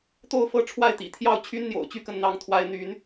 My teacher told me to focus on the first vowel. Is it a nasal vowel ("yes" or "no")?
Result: no